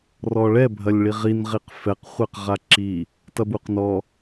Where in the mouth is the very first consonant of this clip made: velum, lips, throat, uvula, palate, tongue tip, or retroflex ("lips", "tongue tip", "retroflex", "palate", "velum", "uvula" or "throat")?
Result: tongue tip